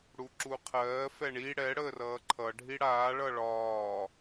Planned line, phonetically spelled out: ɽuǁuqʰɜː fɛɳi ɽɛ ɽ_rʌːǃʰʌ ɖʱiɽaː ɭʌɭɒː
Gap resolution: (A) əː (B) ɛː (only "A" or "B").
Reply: A